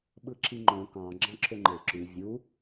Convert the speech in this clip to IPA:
ɓ ɯ ǁ i ŋ͡ǃ õ k ɑ̃ ɡ͡ǁ ɑ̃ ǁʰ ø ŋ͡ǃ e ǁ y vʲ u

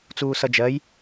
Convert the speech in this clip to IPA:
t͡s uː s ʌ d͡ʒ ɜ j

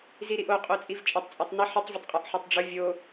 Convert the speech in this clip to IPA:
z i ɾ i ʔ o qʼ o t͡sʼ i v t͡ʃʼ ɪ tˤ t͡sʼ o tˤ n ɪ ħ ə tˤ vʲ ə tˤ qʼ ə ʔ ħ o tˤ ɖ͡ʐ ʊ vʲ o

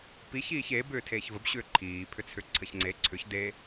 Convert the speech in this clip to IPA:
p i ç iː ç e b ʏː tʰ eː ç v ə b ɕ ʏː ǃʰ iː pʰ ʏ t͡sʰ ʏ ǀʰ ə ç ŋ͡ǀ e ǀʰ ʏ ç d e

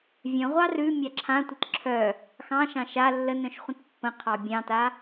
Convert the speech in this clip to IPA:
vʲ œ̃ ʁʷ ɑ r ʉ mʲ a ǁʰ ã tʷ ə t ǁʰ œ | x ɑ̃ ʃ ɑ̃ ʃ a lː ə n œ̃ ʃ χʷ ə̃ t pː ə̃ qʰ ɑ bʲ ɑ̃ t a

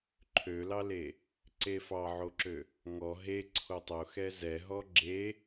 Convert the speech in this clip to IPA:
ǃʰ ø l ɑ l e | ǀ e f ɑ ʕ o ǁ ø | ŋ ɔ ɦ e ǀʰ o tˤ o x ɛ z ɛ ɦ ɔ ɡ͡ǁ e

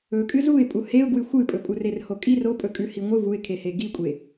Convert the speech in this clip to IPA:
ɵ kʼ ɨ z u ɪ̯ pʼ u h e ʊ̯ ɡ w ɨ xʷ ɨ pʼ ɵ pʼ u r e r h o kʼ i r o pʼ ɵ kʼ ʉ h i ŋʷ ɨ v u ɪ̯ kʰ e h e ɡ i kʷʼ e

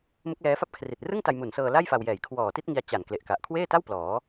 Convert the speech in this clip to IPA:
m ɯ˦˥ k̚ l ɛː˦˥ f a˥˩ p̚ kʰ r i˨˩ t̚ r ɯ˥˩ ŋ t a˧ j m u˨˩ n s ɤː˧ l a˥˩ j f a˧ w j ɛː˨˩ j kʰ w ɔː˨˩ t i˥˩ t̚ ŋ i˧ a̯ t͡ɕ a˨˩ n k l e˨˩ ʔ k a˨˩ ʔ kʰ w eː˥˩ t a˥˩ w p l ɔː˩˦

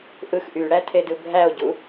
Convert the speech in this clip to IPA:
ʔ ɯ x ʔ y ɽ æ tʰ e d ɯ bʱ æ o̯ ɟ u

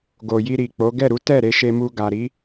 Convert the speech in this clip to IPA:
ɡ o˨ j i˧ ɾ i˨ k͡p o˨˦ ɡ ɛ˦˨ ɾ u˨˦ t ɛ˦˨ ɾ e˨˦ ʃ e˧ m u˧ ɡ a˨ ɾ i˨˦

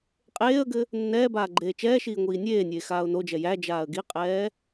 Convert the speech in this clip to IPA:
qʼ eː ə̯ ɡ ɘ | nː ɛː b aː ɡ͡ǃ eː t͡ʃ ɛː ʃ iː ŋʷ iː nʲ eː nʲ eː x aː ʊ̯ n o d͡ʒ ɛ j æ d͡ʒ aː ə̯ ɡ i qʼ ɛː

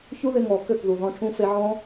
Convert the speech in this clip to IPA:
ç u˦ ð ɪ˧ ŋ ɔ˨ k ø˦˨ k ð u˨ ð ɔ̃˧ ʈʰ ũ˧ f e˧ ʕ ɔ̃˦

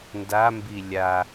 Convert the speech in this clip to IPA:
n d a m b i lʲ a

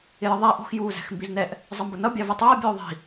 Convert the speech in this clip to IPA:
ɪ j ə ðˤ æ ʔ ɔ̤ x j uː z æ̤ x m b i z n ɛ ʔ | zˤ ʌ m b ʊ n ʌ bʲ ɑ v ɛ tˤ ʌː bʲ ʊː ðˤ i̤

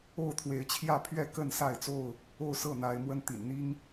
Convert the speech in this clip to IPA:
o˥˨ ʊ̯ t̪ʰ w e˨˦ ɪ̯ t͡ɕʰ j ä˥˨ pʰ ɥ ɛ˥˨ k ə˥˨ n s a˥˨ ɪ̯ t͡s o˥˨ ʊ̯ | o˥˨ ʊ̯ s ɤ˥˨ n̪ a˨˦ ɪ̯ m w ə˦ n t̪ ḭ˨˩ n n̪ i˦ ŋ

